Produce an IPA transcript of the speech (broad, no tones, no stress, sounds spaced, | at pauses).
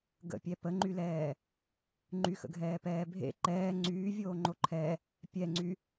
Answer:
ɡ ə̰ pʲ ɛ p ə ŋ͡ǃ y l ɛː | ŋ͡ǃ y x ə̰ ɡʱ ɛː p ɛː bʱ ḛ ǃ ɛː ŋ͡ǀ yː vʲ oː ŋ͡ǃ o ǃʰ ɛ | pʲ ɛ ŋ͡ǀ y